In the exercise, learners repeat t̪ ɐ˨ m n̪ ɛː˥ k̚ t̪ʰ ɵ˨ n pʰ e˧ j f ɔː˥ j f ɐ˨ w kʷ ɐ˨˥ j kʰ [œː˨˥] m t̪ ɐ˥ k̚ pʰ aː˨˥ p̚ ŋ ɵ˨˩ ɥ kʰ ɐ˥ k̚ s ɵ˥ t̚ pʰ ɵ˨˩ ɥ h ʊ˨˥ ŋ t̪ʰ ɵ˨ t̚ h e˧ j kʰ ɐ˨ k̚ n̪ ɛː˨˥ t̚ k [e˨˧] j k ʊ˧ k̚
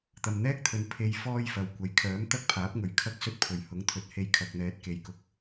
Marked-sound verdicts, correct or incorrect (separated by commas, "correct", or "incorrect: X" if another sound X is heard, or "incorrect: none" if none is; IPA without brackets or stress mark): correct, incorrect: e˨